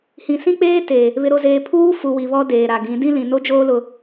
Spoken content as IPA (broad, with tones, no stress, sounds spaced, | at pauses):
h ĩ˨ s ĩ˦ k͡p eː˦ t e˨ | β ɪ˨ ɾ o˨ z eː˨ pʰ uː˦ f u˨ w i˨ β ɔ˦ d eː˨ ɾ a˨ ɡ ĩ˨˦ d ĩ˦ l ĩ˨ n o˦ d͡ʒ oː˦ l ʊ˦